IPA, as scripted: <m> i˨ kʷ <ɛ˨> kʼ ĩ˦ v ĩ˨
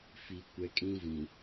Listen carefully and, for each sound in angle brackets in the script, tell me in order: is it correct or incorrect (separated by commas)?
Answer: incorrect, correct